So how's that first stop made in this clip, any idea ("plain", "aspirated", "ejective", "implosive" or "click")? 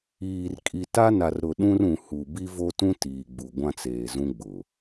ejective